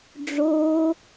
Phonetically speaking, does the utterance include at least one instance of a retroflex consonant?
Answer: yes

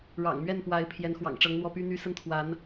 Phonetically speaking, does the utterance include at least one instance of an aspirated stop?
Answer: yes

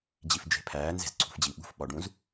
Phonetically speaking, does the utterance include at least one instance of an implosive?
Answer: yes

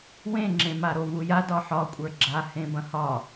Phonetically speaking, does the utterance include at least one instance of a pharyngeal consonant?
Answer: yes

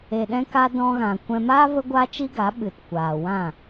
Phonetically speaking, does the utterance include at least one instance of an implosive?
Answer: yes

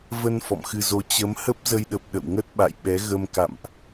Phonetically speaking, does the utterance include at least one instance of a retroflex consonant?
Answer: no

